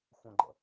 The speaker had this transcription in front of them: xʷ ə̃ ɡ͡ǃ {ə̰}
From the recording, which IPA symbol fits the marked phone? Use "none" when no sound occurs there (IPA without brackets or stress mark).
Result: ə̰